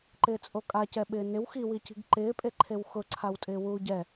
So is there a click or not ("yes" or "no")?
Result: yes